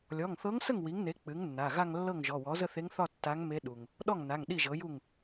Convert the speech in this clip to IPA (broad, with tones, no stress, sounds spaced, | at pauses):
lʲ ɔ˩˧˩ ŋ θ ɤ˧˥ ŋ s ə˥˩ ŋ w i˩˥ ŋ n e˩˥ k͡p ɨ˩˥ ŋ nː a˩˧˩ ɣ a˥˧ ŋ lː ɤ˥˩ ŋ ʒ ɔ˩˧˩ w ɔ˩˥ z ə˥˧ θ e˧˥ ŋ θ ɒ˥˧ tː a˧˥ ŋ m e˧˥ ɗ u˩ ŋ | ɗ ɔ˥˩ ŋ n a˩˧˩ ŋ ɗ i˥˩ ʒ ɤ˩˥ j u˥˩ ŋ